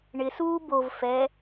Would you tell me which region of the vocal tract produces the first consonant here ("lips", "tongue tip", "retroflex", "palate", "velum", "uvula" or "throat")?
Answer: retroflex